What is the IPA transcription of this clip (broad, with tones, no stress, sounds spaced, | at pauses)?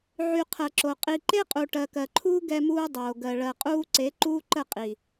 ʕ y˨ qʰ ɜ˨ ǁ o˨ qʼ i˨ ǃ e˦ qʼ u˨ ʈ ɜ˨ k ɜ˨ ǃʰ uː˦ ɡ ɛ˦ m uː˦ dˤ oː˨ ɡ ɜ˨ ɭ ɜ˨ qʼ uː˦ ǀ e˨˦ ǃ uː˦ ǃ ə˦˨ qʼ i˨